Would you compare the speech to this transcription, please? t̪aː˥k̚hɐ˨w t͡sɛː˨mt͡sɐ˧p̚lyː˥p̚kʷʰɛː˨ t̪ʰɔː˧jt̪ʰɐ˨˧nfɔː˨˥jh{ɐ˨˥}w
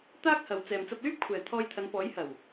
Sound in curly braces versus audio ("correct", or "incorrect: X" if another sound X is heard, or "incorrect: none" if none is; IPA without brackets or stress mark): incorrect: ɐ˨˩